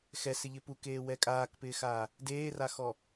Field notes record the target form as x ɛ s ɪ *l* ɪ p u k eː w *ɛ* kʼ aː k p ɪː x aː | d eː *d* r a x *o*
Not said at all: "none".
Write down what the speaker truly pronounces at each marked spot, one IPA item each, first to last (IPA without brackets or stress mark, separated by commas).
ʎ, ɛ, none, ɔ